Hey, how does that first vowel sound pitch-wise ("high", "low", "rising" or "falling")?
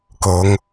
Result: rising